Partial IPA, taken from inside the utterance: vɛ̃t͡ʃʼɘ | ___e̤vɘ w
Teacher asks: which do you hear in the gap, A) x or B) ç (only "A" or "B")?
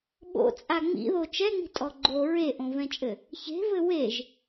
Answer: B